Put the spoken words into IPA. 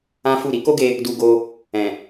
ã˦ f u˦˨ ɾ i˨˦ k o˦ ɡ e˧ | d u˧ ɡ o˧ | ɛ̃˨

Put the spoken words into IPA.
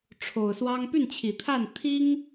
ʈ͡ʂʰ o˨˩ ʊ̯ s w ɑ˥ ŋ p y˥˩ n t͡ɕʰ i˨˩ t̪ʰ a˥˩ n t̪ʰ i˥ ŋ

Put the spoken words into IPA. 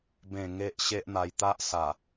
b ẽ˨˩ ŋ e˦ ʔ ɕ e˦ ʔ n̪ a˧ j t̪ a˦ ʔ s a˨˩

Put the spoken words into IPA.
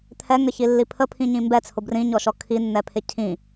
t̪ʰ ɛ ŋ ə ç i lː i pʰ ə pʰ ĩ ɲ ĩ m b ɛ t͡sʰ ʊ b r ĩ ɲ ɔ ʃ ɔ kʰ i nː ɛ pʰ ɪ cʰ ĩ

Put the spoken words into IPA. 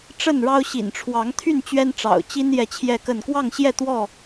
ʈ͡ʂ ə˥˨ n ɻ ɑ˦ ʊ̯ ɕ ḭ˨˩ n ʈ͡ʂʰ w ɑ˨˦ ŋ t̪ʰ y˥˨ n t͡ɕ ɥ ɛ˦ n ʈ͡ʂ ɑ̰˨˩ ʊ̯ t͡ɕ i˦ n j ɛ˥˨ t͡ɕʰ j ɛ˥˨ k ə˥˨ n k w ɑ˥˨ ŋ ɕ j ɛ˥˨ t̪ w ɔ˥˨

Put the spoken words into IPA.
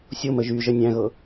sʲ o m ə ʒ y ʒ ə nʲ æ̃ ɣ ɤ

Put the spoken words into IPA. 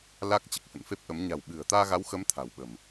l a˦˥ k̚ t͡ɕ ɨ˨˩ k̚ h ə̰˧˨ n f e˦˥ p̚ ʔ ə˨˦ m ɲ a̤˨˩ w ɓ ɨ̤˨˩ ə̯ t̪ aː˧ ɣ a˨˦ w x ə˨˦ m t̪ʰ a̤˨˩ w ɓ ə̤˨˩ m

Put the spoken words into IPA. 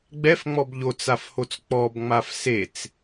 ɡ͡b ɛ f ŋ͡m ɔ b ʎ o t͡s a f h o t͡s k͡p ɔ b ŋ͡m a f s e t͡s

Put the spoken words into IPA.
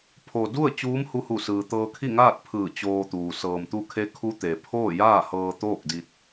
pʰ o˩ d u˥˨ ə̯ t͡ɕ uː˧˥ m h u˧ h u˧˩ s ɯː˩ t̪ ɤː˧ kʰ i˥˨ ŋ aː˥˨ t̚ pʰ ɯː˧˩ t͡ɕ oː˧ t̪ uː˩ s ɤː˩ m t̪ u˧ kʰ e˧˥ kʰ u˧˥ t̪ e˩ pʰ oː˥˨ j aː˥˨ h ɤː˧ t̪ oː˥˨ k̚ d i˧ t̚

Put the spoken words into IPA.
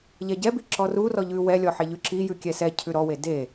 ʎ ɛ ɟ ɛ b i ǁ ɔ r u r ɔ ʎ ʉ w ɛ lʲ ɔ ħ e ʎ ʉ ǁ i j ʉ kʲ ɛ s ɛ cʰ ʉ ɾ ɔ w e d e

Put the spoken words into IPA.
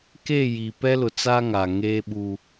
k e˦˨ j i˨ p ɛ˦ l ʊ˨ t͡s a˦ ŋ a˨ ŋ eː˦ ɓ u˦

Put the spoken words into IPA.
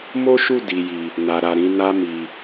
m o˦ ʃ u˦˨ d i˨ j i˨ | n a˨ ɾ a˨ ɾ ĩ˨˦ n a˧ m i˨

